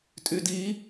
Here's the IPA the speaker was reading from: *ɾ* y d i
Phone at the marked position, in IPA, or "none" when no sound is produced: tʼ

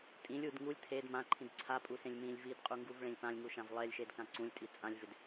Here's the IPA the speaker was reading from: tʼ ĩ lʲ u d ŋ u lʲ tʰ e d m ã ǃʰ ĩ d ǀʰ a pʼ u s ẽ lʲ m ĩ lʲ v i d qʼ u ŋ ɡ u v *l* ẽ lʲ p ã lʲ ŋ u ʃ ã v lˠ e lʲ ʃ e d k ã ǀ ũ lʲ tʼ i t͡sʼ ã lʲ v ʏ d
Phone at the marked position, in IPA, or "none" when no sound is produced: ɭ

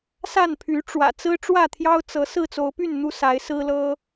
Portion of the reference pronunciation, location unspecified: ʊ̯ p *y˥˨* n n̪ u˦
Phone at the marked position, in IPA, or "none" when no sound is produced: y˥˨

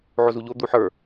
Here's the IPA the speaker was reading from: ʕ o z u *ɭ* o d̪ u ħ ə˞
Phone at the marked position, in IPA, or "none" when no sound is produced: ʎ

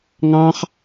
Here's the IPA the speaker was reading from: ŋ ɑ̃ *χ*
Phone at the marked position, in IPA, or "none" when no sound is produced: χ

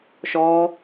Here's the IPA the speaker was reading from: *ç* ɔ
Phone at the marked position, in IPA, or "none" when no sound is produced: ʃ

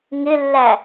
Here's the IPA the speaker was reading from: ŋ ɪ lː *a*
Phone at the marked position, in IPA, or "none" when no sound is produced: æ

